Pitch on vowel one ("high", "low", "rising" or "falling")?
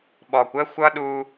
low